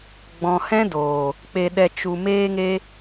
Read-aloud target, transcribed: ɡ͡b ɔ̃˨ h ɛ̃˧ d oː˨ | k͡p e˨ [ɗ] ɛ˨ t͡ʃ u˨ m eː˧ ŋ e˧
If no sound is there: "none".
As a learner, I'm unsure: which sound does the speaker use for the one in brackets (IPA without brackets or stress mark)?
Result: ɗ